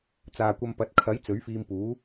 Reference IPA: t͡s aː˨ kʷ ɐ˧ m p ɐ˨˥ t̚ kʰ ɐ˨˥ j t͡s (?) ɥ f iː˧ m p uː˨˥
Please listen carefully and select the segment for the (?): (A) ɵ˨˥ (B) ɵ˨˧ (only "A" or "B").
A